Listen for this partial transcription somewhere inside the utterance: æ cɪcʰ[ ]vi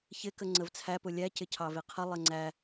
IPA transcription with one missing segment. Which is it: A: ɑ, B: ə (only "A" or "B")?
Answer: A